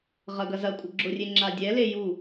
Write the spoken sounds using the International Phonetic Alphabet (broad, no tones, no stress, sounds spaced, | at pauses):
ʁ ɐ ɡ ɐ z ɐ kʷʼ ə ɡ͡ǁ ʊ rʲ e ŋ͡ǁ a dʲ ɛ l e j u